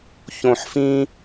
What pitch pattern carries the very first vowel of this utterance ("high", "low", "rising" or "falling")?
low